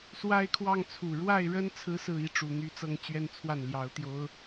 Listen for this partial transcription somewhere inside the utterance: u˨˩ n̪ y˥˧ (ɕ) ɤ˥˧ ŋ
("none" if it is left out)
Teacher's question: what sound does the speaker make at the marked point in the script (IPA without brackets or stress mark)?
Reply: t͡s